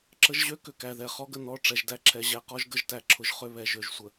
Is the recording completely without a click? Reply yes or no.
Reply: no